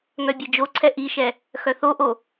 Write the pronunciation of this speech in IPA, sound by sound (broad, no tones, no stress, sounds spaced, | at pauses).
ŋ œ bʲ e d͡ʒ o ǀʰ ɛ ʔ i ʃ ɛ | x œ θ o ʔ o